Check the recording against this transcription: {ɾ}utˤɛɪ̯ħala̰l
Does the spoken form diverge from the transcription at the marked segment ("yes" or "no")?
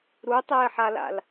no